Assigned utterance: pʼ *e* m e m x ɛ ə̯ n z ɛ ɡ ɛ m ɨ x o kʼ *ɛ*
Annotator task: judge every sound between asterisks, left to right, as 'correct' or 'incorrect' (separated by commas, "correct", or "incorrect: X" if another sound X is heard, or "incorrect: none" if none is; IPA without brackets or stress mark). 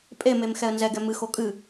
correct, incorrect: ɨ